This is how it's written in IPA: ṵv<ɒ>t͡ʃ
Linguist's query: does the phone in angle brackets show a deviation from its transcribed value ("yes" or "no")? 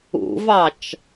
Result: yes